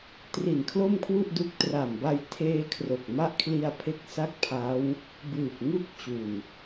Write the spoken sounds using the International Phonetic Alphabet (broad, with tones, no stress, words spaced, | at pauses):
tri˨˩n kʰlo˥˩mkʰwu˥˩ʔdu˦˥k̚ tra˨˩mba˧jtʰeː˧ kʰro˨˩k̚ma˦˥ʔkʰli˧a̯pʰe˦˥k̚ sa˥˩k̚pʰa˦˥w | bɯː˨˩p̚ŋu˦˥k̚t͡ɕu˨˩n